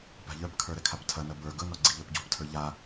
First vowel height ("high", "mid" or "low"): low